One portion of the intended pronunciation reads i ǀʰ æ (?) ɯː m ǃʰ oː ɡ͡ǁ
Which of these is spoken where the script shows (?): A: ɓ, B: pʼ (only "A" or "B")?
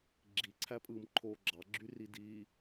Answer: B